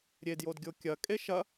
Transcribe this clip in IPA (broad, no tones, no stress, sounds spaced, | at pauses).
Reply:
ɾʲ e d j o d ɡʲ o kʲ ɐ kʼ e ʃ ɐ